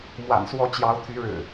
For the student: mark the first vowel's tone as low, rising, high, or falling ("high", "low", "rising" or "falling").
low